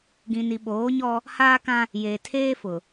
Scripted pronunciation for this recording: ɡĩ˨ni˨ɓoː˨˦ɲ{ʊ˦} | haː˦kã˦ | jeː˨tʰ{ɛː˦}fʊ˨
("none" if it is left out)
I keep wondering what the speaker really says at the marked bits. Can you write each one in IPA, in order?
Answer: ɔ˦, eː˦

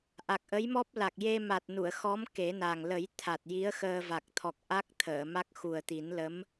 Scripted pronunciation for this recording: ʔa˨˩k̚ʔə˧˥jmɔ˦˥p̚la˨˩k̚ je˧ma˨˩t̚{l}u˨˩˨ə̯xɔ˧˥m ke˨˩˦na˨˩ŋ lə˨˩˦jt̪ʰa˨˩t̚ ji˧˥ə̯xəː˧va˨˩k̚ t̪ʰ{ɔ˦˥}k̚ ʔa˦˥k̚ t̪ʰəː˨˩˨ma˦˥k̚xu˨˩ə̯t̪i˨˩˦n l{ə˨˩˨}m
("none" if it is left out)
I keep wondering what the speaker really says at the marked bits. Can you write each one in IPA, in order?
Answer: n, ɔ˨˩, ə˧˥

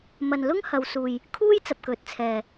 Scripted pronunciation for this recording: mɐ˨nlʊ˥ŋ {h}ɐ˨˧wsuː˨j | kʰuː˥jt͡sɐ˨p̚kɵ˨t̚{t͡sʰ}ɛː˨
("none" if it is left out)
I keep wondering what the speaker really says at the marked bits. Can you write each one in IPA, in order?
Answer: h, t͡sʰ

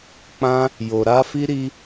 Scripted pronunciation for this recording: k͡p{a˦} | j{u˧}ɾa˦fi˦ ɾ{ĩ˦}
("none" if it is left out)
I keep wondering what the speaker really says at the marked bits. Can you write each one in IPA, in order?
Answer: ã˦, o˧, i˦

